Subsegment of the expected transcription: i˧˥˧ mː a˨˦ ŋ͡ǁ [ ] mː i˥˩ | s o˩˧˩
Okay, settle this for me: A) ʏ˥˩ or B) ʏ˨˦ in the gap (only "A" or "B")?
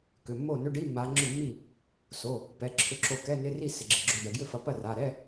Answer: A